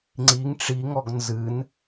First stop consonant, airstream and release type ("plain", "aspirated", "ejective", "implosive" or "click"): click